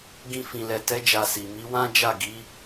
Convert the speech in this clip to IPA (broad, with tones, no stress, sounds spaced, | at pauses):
ɡ ĩ˧ f ĩ˨ l ɛ˨ t ɛ˨˦ d͡ʒ a˧ s i˨ m i˨˦ w ã˦ d͡ʒ a˦˨ ɡ i˨˦